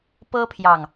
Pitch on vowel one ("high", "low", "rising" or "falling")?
high